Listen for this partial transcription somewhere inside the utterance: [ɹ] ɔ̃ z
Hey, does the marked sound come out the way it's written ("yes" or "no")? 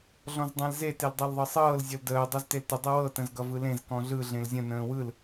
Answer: no